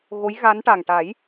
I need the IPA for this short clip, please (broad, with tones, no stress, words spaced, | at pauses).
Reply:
ɣo˧˥jɣa˧˥nʈa˨˩ŋ ʈa˨˩˦j